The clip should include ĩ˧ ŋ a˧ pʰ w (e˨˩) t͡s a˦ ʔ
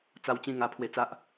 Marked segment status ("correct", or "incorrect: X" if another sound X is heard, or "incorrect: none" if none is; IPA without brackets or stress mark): incorrect: e˧